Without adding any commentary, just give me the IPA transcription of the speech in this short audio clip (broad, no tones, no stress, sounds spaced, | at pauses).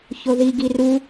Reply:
ç o ð i ɡ i r u